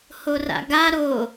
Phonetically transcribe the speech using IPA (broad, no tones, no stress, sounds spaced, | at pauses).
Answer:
h o r a̰ ɡ a ɾ o